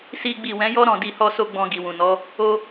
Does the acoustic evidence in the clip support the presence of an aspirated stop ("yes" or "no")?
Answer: no